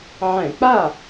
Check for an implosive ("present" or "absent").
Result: absent